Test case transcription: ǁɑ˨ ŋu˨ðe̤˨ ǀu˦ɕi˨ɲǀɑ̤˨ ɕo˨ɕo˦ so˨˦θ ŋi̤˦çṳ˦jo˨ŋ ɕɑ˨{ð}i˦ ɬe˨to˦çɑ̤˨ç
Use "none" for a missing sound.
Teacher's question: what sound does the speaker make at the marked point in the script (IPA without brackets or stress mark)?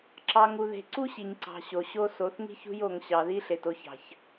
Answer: ð